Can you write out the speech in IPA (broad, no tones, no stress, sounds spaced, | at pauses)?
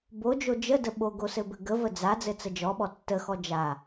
b o d͡ʒ o d͡ʒ ə d ə ɓ o ɡ o s ɘ b ɘ ɡ ə v ə d͡z a d͡z ɘ t͡s ə d͡ʒ ɔ ɓ ɔ tː ə x ɔ d͡ʒ a